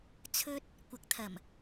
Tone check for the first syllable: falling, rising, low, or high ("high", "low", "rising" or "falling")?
high